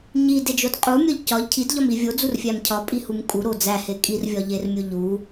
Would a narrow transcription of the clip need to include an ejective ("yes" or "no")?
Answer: yes